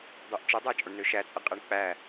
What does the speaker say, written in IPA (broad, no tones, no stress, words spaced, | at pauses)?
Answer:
dˤyʔt͡ʃɯdˤæ t͡ʃʼoɳnøʃæt͡sʼɯ qʼeɳk͡pæ